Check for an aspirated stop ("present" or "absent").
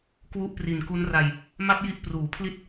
present